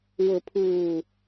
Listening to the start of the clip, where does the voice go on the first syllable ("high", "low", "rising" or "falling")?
low